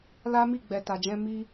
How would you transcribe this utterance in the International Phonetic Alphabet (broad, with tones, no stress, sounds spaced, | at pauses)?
l a˦ m i˦˨ ɡ͡b ɛ˨ t a˨ d͡ʒ ɛ̃˧ m i˦